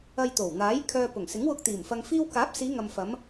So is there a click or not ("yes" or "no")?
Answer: no